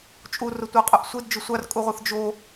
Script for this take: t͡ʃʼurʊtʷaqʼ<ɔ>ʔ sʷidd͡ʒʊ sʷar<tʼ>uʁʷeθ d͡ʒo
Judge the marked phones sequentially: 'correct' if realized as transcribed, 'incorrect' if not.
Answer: incorrect: ʊ, incorrect: kʼ

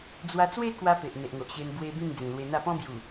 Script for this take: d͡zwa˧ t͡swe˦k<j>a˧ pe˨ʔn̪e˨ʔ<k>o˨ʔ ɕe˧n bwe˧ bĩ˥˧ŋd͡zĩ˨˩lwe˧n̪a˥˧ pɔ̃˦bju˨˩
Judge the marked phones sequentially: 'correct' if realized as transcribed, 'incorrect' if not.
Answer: incorrect: w, incorrect: ŋ

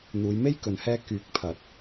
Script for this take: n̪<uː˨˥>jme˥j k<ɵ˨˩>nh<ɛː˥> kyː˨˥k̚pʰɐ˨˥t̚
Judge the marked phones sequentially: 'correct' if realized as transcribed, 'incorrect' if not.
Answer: incorrect: uː˨˧, incorrect: ɵ˨, correct

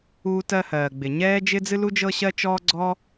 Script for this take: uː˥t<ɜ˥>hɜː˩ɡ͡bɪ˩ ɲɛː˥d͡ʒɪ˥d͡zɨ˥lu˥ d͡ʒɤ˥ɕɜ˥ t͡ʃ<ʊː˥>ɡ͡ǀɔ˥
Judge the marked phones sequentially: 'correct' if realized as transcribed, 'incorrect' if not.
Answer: correct, incorrect: ɔː˥

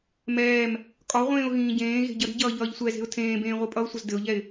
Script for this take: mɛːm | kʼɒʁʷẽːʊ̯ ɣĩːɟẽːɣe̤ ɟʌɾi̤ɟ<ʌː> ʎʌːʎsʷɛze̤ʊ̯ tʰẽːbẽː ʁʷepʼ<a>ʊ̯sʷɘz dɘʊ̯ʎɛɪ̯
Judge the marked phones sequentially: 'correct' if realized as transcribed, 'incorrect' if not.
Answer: correct, incorrect: ʌ

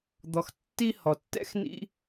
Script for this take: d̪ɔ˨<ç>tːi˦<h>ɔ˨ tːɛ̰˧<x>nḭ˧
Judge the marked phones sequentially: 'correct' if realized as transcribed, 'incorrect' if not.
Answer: incorrect: x, correct, correct

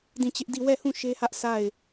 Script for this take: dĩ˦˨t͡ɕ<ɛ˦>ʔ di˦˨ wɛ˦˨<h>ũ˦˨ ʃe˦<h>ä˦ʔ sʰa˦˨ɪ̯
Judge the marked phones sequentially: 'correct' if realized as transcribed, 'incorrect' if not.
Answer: incorrect: ɪ˦, correct, correct

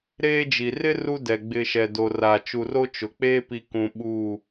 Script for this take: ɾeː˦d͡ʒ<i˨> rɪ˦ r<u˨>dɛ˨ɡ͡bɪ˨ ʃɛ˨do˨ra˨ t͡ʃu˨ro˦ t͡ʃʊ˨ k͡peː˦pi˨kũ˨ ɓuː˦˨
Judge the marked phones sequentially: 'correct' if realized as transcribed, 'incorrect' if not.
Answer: correct, incorrect: u˦

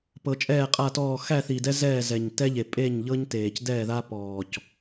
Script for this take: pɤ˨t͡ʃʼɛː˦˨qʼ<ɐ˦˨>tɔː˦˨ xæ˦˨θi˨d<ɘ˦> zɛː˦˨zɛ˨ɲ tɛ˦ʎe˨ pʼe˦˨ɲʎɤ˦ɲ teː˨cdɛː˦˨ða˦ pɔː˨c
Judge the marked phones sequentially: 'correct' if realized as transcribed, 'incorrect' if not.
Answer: incorrect: a˦˨, incorrect: ɛ˦

